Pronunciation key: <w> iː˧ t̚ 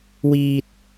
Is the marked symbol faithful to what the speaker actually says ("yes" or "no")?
yes